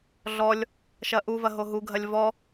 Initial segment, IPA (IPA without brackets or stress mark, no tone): ɮ